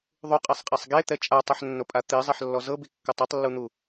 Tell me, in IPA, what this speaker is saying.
ðˤ u qʼ e sˤ qʼ e sˤ ɡ e t̪ ɛ t͡ʃʼ a tˤ ɛ ħ nː o pʼ a t̪ i zˤ e ħ lː ɔ z ɤ b i kː ɤ tˤ ɛ tˤ lː u n̪ u

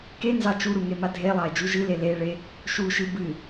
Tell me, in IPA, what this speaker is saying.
k e n z ɑ t͡ʃ u ɾ u ŋ e m a dʱ e lˠ ɑ e̯ d͡ʒ u ʒ ɨ l e l e ɭ e | ʃ u ʃ ɨ b ɨ

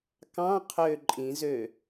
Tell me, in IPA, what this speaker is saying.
k ɑ̃ qʰ ø ǃʼ ĩ z ø

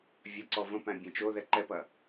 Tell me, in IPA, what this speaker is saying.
vʲ ɐ ǀ ɔ v ə̃ p æ̃ bʲ ẽ t͡ʃ o ð ɛ ǃ ɛ p ɐ

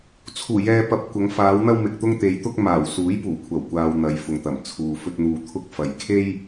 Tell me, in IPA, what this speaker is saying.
t͡sʰ uː˨˩ j ɛː˨ p ɐ˨ p̚ kʷ ɐ˨˧ ŋ f aː˨˧ w n̪ ɐ˧ w m ɪ˨ k̚ t̪ ʊ˧ ŋ t̪ e˨˧ j t̪ ʊ˧ k̚ m aː˨˩ w s uː˨˥ j p uː˨˩ kʷʰ ɐ˨˩ w kʷ aː˨ w n̪ ɐ˨˧ j f ʊ˨ ŋ t̪ ɐ˨˩ m t͡sʰ uː˨ f ɵ˧ t̚ n̪ uː˨ t̪ʰ ʊ˧ k̚ f ɐ˨ j kʰ e˥ j

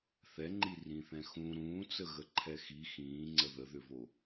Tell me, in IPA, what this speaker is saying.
θ ɛ ŋ͡ǃ i r ĩ θ ɛ̃ x ũ ɾ ũː t͡s ə ɣ ə ǃʰ ɛ x i x ĩː ŋ͡ǀ ə ð ə ð ʏ v o

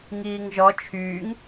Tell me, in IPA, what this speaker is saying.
ŋ iː ŋ ʒ ɔ t͡ʃʰ yː ŋ

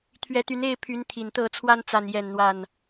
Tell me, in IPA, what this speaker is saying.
t̪ʰ ɥ ɛ˨˦ t̪ y˨˦ n e˥˨ ɪ̯ pʰ y˨˦ n t̪ʰ i˨˩ n t̪ ɤ˥˨ t͡sʰ w a˦ n t͡s a˥˨ n j ɛ˥˨ n n̪ w a˥˨ n

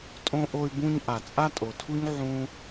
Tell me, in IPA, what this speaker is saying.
tʼ õ˧ ʔ o˧ y̯ b ũ˧ ɲ ʔ a˨ t͡sʼ a˦ tʼ o˨ tʰ u˦ ɲ ʕ ũ˦

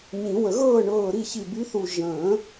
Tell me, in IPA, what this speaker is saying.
ɲ ĩ˨˩˦ w ə˨˩˦ ɣ ɤː˥˩ ɳ ɤː˧˩ ɾ i˥˩ ç i˧˩ b y˨˥ θ u˧˩ ʒ ə̃ː˨˩˦

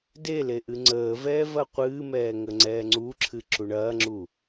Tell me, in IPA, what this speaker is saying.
d e l e ʔ ɨ ŋ͡ǀ əː v ɛː v ɐ qʷ ɨː m ɛː ŋ ə ŋ͡ǀ ɛː ŋ͡ǀ u ǁʰ ɨ ǁ u ɳ ɐː ŋ͡ǁ u

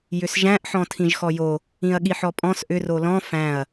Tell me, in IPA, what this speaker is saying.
j ʏ s ʒ æ̃ ʔ ħ ɔ̃ tʰ ĩ ʒ x ɔ j o | ĩ ɐ̯ ɠ i ħ ɔ pʼ ɔ̃ s ʔ ʏ r o l ɔ̃ f æ̃ ɐ̯

